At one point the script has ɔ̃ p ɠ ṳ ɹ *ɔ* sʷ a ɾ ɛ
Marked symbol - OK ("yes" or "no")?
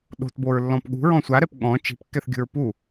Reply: no